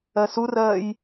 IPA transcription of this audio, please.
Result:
ɜ s u r ɜː j

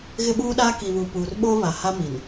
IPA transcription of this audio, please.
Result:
ɣ ɪ˦ ɓ uː˦ ɗ aː˦ k i˨ β u˨ p uː˨ r ɓ oː˦ β a˨ h a˦ m i˨ n

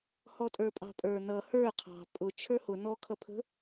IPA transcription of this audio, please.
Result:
h ɔ tʼ ə˞ pʼ ɑ̤ pʼ ə˞ n ʌ h ə˞ qʰ ɑ̤ pʼ ʊ t͡ʃʰ ə˞ h ʊ n ɔ kʰ ʌ pʰ ə̤

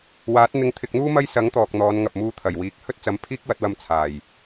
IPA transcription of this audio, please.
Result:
w aː˨˥ t̚ n̪ ɪ˧ ŋ t̪ʰ ɪ˧ k̚ n̪ uː˥ m ɐ˥ j s ɐ˨˥ ŋ t̪ ɔː˨ k̚ n̪ ɔː˨˧ n ŋ ɐ˨ p̚ m uː˧ t̪ʰ ɐ˨˩ j w iː˨˥ k̚ h ɵ˥ t̚ t͡s ɐ˨˧ m pʰ iː˥ k̚ w ɐ˨˥ t̚ w ɐ˧ m t͡sʰ aː˨˩ j

